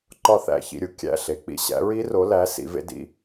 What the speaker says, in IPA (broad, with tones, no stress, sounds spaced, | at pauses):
ǃ ɒ˦˨ θ æ̰˧˩˧ ç ḭ˩˧˩ ɾʲ u˦˥ kʲ æ̰˦˨ ɬ e˩˧˩ k͡p ḭ˦˨ ɕ æ̰˨˦ ɹ i˦˥ r o˨˦ l æ˨˦ s ḭ˨˦ v ḛ˦˥ d ḭ˩˧˩